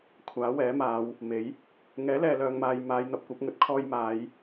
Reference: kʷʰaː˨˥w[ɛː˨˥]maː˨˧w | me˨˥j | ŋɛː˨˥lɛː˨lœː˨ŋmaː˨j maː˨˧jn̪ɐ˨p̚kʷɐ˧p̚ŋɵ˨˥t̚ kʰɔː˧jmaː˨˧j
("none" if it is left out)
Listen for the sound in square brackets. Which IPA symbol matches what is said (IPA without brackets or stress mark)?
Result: ɛː˨˥